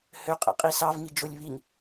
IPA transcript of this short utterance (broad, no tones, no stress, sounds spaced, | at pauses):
h ø qʼ ɛ̰ qʼ i s ɑ v ŋ i d͡ʒ o lʲ β i ŋ